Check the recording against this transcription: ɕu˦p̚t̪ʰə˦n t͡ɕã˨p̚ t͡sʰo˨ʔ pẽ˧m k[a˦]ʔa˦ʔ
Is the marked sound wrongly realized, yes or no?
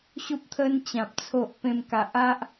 yes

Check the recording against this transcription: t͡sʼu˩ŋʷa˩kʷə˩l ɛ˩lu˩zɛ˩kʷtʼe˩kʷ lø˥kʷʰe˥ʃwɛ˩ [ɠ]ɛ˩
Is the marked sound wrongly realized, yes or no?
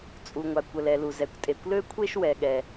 no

